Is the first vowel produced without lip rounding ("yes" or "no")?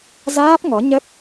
yes